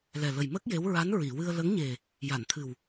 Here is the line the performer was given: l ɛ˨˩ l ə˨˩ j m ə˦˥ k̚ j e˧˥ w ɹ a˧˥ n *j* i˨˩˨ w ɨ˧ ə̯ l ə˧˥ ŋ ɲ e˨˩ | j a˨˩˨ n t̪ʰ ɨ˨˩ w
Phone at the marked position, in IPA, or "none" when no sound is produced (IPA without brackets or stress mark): ɹ